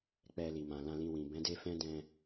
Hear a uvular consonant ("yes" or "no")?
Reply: no